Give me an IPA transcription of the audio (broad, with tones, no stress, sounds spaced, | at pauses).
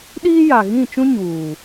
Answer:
ɗ iː˦ j a˨ ɣ ĩ˦˨ t͡ʃ ũ˦ ɲ uː˨